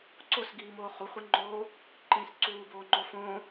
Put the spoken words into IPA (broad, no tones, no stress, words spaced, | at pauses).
ǀosɡiːmoː χuχʷiŋ͡ǃoː | ǃĩːsǀuːboː ŋ͡ǃofõ